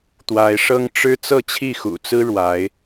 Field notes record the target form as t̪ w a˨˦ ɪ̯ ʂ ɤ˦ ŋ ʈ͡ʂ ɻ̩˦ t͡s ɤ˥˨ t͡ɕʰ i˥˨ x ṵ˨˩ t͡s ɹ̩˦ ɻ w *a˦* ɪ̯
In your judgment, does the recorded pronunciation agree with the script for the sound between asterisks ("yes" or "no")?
no